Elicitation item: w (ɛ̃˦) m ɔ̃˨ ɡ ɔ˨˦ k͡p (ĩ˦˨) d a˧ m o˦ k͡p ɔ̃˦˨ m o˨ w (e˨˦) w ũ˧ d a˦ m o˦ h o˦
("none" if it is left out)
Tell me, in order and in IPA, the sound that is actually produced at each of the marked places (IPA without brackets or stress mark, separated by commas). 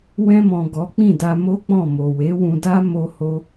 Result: ɛ̃˧, ĩ˦˨, e˨˦